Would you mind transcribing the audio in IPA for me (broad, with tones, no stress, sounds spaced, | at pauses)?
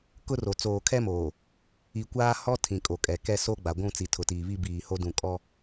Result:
k ʊ˦ r o˨ t͡s oː˨ kʰ ɛ˦ m oː˨ | i˨ kʷ aː˦ h ɔ˦ tʰ ĩ˨ kʼ o˨ kʼ ɛ˨ k ɛ˦ s o˦ ɡ͡b a˨ ɡʷ ũ˦˨ t͡s i˨ tʰ ʊ˨ t iː˨ β i˦ b iː˨ h o˦ d ũ˨ kʼ ɔ˦